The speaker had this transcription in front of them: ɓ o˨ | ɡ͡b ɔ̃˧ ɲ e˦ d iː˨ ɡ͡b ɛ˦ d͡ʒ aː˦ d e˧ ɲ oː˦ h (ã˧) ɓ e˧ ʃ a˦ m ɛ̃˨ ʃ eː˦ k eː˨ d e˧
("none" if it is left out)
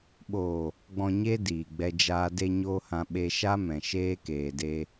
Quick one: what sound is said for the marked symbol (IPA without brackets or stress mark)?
ã˧